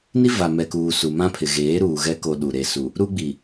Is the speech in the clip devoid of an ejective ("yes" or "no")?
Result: yes